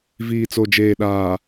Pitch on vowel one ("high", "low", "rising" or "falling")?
low